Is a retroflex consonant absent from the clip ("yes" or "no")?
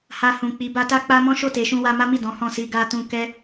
yes